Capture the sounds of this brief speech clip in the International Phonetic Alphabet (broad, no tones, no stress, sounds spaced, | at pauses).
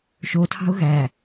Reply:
ʃ o tʰ ɑ̤ ʊ̯ ɣ æ